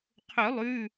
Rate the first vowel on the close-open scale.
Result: close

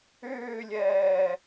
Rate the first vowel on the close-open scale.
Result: close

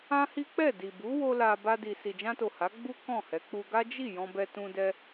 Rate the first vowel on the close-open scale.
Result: open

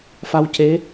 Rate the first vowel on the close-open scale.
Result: open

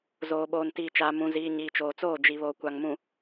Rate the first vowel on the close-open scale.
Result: mid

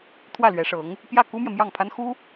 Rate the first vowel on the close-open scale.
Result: open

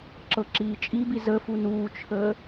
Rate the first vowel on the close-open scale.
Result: mid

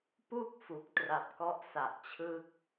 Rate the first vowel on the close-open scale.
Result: close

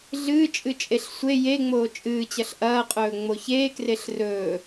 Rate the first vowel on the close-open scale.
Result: close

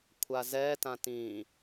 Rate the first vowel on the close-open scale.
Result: open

